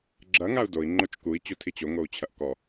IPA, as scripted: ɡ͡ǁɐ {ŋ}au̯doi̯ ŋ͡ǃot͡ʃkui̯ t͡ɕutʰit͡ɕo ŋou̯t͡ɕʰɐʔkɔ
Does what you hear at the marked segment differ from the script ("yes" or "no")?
no